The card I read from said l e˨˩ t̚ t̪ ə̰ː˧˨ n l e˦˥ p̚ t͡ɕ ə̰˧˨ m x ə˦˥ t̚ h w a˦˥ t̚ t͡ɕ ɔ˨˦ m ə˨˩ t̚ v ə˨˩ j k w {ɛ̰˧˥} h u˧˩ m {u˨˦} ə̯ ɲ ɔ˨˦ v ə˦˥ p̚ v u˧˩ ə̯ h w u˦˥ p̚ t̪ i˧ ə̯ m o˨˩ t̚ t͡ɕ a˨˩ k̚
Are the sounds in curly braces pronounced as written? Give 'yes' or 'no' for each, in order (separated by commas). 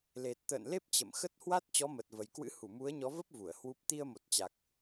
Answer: no, yes